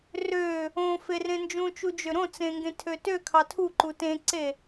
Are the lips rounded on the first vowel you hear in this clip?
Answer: yes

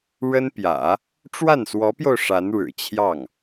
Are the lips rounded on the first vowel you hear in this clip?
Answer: no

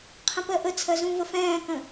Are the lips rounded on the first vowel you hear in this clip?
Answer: no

